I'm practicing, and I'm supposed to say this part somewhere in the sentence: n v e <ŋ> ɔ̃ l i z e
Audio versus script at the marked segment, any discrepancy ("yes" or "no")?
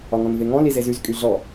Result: no